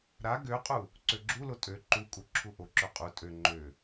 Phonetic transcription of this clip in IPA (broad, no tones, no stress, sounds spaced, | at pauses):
ɾ a ɡ ø qʼ u | ǀ ø ɡ͡ǁ u l o tʼ ø ǃ u kʼ u ǁʰ u ʔ o ǁ ø qʼ u tʼ ø ŋ͡ǃ ø